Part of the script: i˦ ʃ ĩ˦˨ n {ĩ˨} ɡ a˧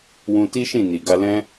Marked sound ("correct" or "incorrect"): incorrect